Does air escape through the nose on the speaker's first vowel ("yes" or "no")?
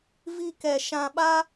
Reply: no